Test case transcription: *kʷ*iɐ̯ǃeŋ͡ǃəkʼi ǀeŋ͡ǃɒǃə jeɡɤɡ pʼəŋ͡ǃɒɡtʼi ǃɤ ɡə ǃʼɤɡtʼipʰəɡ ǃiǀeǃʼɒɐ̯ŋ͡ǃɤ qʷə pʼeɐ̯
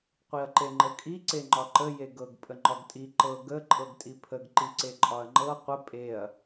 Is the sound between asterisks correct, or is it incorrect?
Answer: incorrect